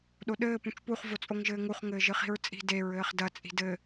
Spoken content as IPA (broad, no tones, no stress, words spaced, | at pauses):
ɗoɗɘː pũt͡ʃpuχ vot͡sʼoŋʒɘːŋuχ ŋɘːʒɨχi̤ɹt͡sʼi̤ de ɹɘːχdɐ t͡sʼi̤dɘ